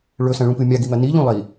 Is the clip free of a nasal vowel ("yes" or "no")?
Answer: no